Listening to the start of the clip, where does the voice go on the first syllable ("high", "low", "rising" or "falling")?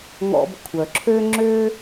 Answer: low